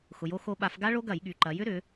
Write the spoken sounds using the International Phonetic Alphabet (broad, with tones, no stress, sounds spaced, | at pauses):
x ʊ˩˧ j o˧ x o˧ ɓ a˧˩˧ f ɡ a˦˥ ɭ o˦˥ ɡ ɐ˧˩˧ j ɠ y˩˧ ǃ ɐ˩˧ j ʏ˦˥ ɾ ʏ˩˧